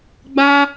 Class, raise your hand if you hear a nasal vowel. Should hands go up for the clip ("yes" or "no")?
no